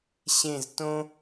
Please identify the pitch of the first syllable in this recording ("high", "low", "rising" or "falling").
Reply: falling